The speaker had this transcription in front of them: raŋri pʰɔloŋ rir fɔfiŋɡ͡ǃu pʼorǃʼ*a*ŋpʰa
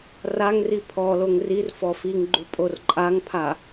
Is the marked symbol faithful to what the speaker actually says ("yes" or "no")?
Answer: yes